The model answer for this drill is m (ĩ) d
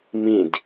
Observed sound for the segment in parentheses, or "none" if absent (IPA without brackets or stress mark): ĩ